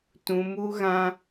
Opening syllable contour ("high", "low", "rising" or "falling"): low